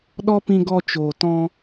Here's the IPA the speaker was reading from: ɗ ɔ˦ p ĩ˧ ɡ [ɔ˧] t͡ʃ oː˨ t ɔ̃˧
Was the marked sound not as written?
no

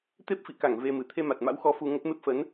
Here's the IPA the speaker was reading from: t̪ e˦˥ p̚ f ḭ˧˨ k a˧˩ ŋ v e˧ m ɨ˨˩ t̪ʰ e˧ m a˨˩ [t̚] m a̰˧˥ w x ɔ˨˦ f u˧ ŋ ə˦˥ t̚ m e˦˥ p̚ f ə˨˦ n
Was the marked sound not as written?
no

